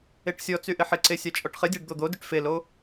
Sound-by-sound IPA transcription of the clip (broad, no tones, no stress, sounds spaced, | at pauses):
e ʈ sʲ ɔ t͡s y ʔ ɪ ħ ɪ ǀ e sʲ a t͡ʃʼ ɔ ʈ χ ɪ dʲ a ɖ d̪ o d̪ o d y ʈ f e l o